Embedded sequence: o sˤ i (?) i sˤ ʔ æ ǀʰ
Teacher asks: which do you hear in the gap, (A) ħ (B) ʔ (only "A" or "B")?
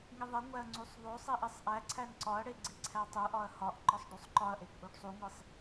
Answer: B